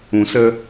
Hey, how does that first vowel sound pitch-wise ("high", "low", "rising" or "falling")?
low